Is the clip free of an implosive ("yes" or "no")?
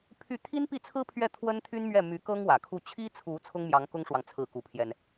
yes